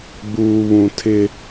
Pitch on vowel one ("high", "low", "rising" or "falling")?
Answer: low